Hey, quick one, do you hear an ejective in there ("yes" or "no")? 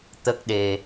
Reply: no